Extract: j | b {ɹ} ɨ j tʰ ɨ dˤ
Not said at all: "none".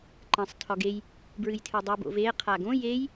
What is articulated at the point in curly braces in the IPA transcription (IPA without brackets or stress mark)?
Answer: ɹ